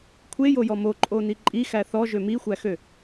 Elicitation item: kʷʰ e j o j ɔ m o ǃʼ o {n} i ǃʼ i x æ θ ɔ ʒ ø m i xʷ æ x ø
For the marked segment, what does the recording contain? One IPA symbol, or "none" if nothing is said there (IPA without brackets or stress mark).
n